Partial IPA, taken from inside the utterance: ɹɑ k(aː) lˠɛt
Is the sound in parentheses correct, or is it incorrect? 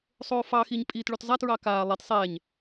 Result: correct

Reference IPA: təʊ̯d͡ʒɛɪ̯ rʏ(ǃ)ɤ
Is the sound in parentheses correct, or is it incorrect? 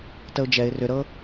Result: incorrect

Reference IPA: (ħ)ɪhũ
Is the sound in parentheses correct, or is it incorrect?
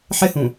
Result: correct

